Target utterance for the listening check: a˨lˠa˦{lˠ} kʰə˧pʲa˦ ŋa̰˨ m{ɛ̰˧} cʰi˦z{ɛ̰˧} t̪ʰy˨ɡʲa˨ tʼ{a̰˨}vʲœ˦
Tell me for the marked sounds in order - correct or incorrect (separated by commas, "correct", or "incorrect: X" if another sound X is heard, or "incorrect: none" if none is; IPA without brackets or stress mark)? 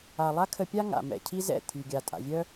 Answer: incorrect: none, incorrect: ɛ̰˨, incorrect: ɛ̰˦˨, correct